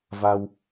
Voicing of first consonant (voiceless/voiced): voiced